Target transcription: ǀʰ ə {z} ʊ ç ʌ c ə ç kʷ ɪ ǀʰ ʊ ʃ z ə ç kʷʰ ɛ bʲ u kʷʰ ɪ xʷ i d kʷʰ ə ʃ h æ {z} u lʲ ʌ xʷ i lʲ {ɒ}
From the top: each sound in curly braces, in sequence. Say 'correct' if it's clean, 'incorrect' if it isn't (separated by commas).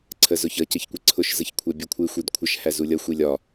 correct, correct, correct